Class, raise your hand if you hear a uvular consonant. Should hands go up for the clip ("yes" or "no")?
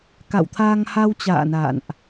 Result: no